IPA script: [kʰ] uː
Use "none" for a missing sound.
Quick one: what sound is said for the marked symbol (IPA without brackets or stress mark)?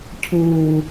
cʰ